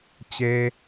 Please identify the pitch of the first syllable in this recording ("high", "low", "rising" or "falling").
low